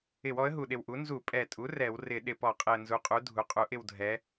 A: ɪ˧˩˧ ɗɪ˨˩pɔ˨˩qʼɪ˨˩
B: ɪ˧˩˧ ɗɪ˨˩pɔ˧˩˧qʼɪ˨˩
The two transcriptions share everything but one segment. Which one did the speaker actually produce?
B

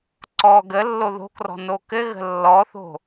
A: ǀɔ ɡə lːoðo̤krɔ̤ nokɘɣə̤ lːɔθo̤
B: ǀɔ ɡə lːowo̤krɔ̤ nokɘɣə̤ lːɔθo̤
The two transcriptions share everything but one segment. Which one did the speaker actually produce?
A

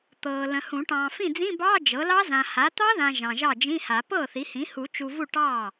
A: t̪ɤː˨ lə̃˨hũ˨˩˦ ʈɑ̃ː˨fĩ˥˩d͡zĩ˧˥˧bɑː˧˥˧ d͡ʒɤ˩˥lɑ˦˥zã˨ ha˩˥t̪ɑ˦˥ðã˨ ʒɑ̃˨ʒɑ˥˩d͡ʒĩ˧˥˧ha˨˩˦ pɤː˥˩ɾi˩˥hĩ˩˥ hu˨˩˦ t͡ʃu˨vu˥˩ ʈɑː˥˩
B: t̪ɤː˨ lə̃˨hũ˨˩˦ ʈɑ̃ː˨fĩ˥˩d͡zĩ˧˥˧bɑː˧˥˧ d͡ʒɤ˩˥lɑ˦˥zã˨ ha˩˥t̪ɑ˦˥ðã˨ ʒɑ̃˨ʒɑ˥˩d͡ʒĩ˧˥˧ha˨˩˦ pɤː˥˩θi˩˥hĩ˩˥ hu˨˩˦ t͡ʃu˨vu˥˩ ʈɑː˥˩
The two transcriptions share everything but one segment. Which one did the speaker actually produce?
B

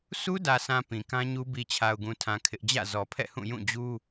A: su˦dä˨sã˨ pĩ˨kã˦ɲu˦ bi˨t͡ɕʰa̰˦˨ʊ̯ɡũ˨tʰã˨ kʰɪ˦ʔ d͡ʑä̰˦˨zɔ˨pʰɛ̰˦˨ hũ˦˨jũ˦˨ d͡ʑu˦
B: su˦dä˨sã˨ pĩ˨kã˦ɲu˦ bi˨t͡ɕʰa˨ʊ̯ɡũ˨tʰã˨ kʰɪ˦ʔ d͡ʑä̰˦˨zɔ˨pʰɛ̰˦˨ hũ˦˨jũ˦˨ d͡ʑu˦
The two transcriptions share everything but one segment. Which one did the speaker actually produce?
B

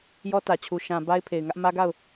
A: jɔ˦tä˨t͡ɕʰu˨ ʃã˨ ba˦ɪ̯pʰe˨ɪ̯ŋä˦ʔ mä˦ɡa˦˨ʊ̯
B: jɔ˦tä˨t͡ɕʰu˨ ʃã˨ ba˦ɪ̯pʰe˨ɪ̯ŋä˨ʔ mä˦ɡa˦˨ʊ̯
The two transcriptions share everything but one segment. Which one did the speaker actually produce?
A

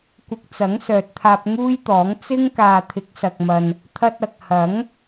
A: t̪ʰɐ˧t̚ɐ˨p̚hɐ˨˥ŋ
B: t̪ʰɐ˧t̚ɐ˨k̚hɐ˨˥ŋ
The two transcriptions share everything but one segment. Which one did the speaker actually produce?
B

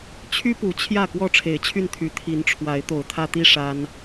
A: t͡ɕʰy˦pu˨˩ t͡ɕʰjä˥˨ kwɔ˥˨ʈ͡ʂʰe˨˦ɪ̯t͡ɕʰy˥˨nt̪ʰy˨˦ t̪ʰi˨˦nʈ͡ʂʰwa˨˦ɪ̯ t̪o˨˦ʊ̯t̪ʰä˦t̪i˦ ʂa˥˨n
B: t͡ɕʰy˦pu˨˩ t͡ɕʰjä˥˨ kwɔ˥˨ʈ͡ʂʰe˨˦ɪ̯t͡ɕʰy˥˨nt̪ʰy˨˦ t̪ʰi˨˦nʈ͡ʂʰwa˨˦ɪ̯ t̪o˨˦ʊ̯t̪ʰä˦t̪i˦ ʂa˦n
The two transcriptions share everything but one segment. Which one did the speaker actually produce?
B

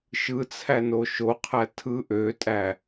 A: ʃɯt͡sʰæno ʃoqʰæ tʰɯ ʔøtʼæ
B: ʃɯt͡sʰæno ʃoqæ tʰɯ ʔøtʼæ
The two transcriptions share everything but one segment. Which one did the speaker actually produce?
A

